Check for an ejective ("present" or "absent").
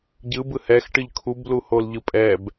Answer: present